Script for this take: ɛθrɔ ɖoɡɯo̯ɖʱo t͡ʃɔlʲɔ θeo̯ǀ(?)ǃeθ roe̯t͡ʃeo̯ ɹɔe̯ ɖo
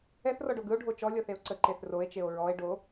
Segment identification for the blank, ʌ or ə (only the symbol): ə